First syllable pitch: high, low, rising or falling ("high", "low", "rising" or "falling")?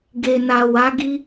low